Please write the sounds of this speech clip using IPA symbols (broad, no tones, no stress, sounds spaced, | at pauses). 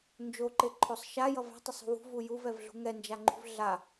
n d͡ʒ o ǃ e ǃʰ o sˤ ʃ a j ʌ v a̤ tˤ ʌ sˤ ṳ w ṳ v u j u v ɛ v ɮ ṳ ŋ ɛ n d͡ʒ a ŋ͡ǃ ṳ v ɮ a